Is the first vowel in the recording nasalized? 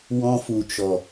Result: yes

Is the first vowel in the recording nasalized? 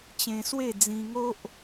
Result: yes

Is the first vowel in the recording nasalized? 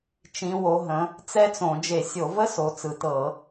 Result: yes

